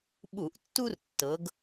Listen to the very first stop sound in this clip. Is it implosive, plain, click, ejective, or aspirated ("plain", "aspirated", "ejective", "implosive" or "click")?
implosive